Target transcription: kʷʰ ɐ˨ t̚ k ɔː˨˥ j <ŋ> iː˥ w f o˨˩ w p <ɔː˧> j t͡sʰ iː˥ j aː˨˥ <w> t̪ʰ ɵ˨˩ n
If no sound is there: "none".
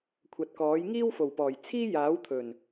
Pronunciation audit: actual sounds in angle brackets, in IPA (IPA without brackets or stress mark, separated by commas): ŋ, ɔː˨˩, w